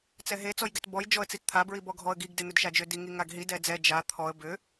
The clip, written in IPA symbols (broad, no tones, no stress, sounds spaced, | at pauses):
t͡s ɛ ɦ e t͡s ɔ j ɡ ɛ t b ɔ j d͡ʒ ɔ ə̯ t͡s i t t̪ʰ a b ɹ i b ɔ ɡʱ ɔ ə̯ ɡ i ɡ d e n̪ ʏ d ʃ a d͡ʒ ʏ d i ŋ i ŋ a ɡ ɦ i d ɛ d͡z ɛ d͡ʒ a t̪ʰ ɔ ə̯ b ʏ